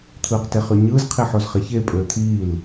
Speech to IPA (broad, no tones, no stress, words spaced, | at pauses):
t̪ʰɯːqteχyɲɯːz qʰiħozχeçe pʼøːt̪ʰiːl